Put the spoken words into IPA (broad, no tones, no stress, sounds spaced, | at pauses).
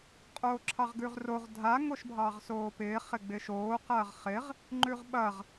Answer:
qʼ oː ǁʰ ɑ ʁ ɡ ʉ ʁ r o ʁ dʱ a ŋ o ʃ bʱ ɑː ʁ s oː p ɪː χ ɪ ɡ͡b ɪ ʃ oː q ɐː ʁ χ ɪ ʁ | ŋ͡ǃ ʉ ʁ ɓ ɐ ʁ